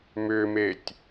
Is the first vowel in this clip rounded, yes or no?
yes